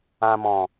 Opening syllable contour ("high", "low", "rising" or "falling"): low